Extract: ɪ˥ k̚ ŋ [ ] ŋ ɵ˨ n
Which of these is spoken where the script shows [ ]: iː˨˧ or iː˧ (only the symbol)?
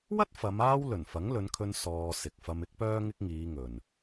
iː˨˧